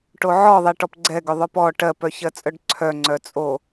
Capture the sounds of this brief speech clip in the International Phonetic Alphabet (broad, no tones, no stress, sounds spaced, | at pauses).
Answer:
ʈ o ʕ ɔ ðˤ ɛ ʈ ɔ p ɡ͡ǀ ɛ ɡ ʏ ðˤ œ p ɔ ʈ ɜ p œ ç ɜ t͡sʼ œ ɖ ǀʰ œ ŋ͡ǀ œ t͡sʼ o